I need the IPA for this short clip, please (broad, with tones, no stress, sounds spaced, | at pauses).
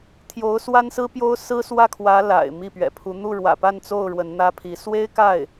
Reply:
t̪ʰ j o˧˥ ʊ̯ s w a˥ n s ɹ̩˥ p j o˥ ʊ̯ s ɹ̩˥ s w ä˥˩ kʰ w ä˧˥ l a̰˨˩ ɪ̯ m i˥˩ p ɥ ɛ̰˨˩ pʰ u˧˥ n̪ u˥˩ ɻ w ä̰˨˩ p a˥˧ n t͡s o˥˩ ʊ̯ ɻ w ə˧˥ n n̪ ä˥ pʰ i˧˥ s w e˥ ɪ̯ k a˥˩ ɪ̯